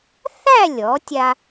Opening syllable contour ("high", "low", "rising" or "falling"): falling